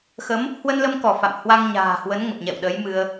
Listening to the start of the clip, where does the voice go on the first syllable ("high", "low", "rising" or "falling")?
rising